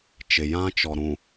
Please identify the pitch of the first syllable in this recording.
low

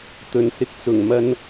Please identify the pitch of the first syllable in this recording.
low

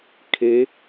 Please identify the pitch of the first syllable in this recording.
rising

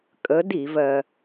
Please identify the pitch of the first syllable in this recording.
rising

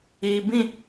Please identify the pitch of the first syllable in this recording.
low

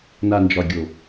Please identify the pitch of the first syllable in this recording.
low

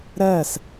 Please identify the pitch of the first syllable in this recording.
falling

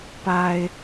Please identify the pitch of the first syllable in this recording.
low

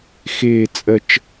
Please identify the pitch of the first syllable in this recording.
falling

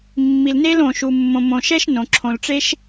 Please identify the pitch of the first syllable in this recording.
low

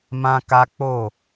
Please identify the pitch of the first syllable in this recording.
high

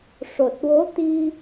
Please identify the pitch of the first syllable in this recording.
low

